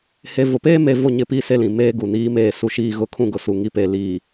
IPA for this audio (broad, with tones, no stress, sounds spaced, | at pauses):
h e˨ v ʊ˨ p eː˦ m e˨ v o˦˨ ɲ ɪ˦ p i˦ s e˦ l ĩ˨ m eː˦ ɡ u˨ n iː˦ m eː˦˨ s u˦ ʃ iː˦ ɣ ʊ˦ kʰ ũ˦˨ ɡ ʊ˨ s u˨ ŋ i˦ p e˨ l iː˨